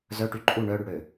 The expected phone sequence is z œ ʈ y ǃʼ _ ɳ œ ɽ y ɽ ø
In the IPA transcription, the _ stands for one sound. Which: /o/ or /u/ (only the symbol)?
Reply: u